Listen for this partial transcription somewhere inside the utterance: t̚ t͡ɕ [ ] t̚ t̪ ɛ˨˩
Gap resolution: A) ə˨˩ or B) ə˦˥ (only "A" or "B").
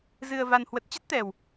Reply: B